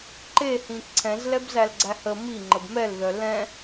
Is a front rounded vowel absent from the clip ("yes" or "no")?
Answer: no